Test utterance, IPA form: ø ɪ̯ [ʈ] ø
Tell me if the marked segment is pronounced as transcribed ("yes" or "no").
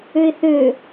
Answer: no